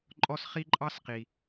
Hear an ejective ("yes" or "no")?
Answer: yes